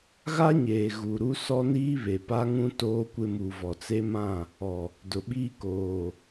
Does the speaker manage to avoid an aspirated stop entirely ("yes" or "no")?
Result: yes